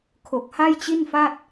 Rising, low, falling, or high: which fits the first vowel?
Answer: low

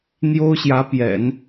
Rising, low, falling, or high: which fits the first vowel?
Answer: high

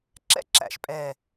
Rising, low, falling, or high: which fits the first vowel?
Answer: high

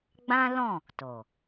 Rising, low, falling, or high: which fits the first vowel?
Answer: high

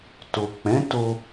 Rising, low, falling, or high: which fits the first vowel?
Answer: low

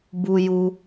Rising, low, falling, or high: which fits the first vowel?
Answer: high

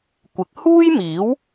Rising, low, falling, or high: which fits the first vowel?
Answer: rising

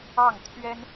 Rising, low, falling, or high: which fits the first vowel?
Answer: falling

